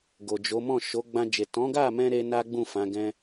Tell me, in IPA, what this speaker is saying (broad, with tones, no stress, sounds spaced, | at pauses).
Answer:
ɡ o˨ d͡ʒ o˨˦ m ɔ̃˦˨ ʃ o˨˦ ɡ͡b ã˧ d͡ʒ e˨ t ɔ̃˨˦ ɡ a˦˨ m ɛ̃˧ ɾ e˦ n a˦ ɡ͡b ũ˦˨ f ã˨˦ ɡ ɛ̃˦